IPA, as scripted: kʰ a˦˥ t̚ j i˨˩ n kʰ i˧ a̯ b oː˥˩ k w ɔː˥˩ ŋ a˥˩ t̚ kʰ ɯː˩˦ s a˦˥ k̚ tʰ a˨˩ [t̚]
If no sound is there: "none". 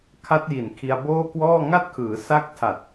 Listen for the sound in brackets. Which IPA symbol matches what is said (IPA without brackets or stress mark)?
t̚